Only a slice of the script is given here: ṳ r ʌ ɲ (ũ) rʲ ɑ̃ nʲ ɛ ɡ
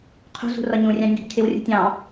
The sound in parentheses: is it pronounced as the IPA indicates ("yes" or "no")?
yes